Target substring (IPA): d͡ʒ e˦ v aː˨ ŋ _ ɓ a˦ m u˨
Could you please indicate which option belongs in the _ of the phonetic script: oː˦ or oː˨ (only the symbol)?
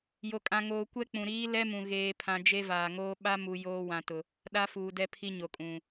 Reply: oː˦